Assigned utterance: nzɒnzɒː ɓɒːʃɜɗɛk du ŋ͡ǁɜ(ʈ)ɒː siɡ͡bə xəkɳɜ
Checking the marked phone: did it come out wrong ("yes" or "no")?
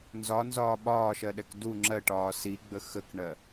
no